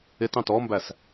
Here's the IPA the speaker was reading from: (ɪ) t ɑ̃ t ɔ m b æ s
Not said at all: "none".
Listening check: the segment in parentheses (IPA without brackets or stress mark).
ɪ